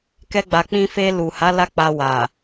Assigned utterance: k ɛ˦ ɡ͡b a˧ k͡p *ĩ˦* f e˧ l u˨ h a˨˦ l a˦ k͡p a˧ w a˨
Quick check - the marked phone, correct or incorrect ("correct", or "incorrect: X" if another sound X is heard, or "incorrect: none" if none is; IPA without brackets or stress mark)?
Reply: correct